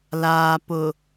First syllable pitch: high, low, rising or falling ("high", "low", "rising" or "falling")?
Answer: low